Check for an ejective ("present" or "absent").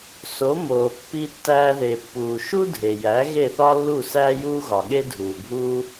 absent